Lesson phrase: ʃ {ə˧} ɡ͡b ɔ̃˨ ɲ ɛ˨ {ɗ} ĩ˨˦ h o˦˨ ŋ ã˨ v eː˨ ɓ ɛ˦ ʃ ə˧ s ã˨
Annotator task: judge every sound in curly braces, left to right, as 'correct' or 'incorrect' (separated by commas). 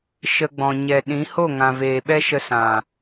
correct, correct